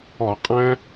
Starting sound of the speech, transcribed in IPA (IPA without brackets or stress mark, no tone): ɔ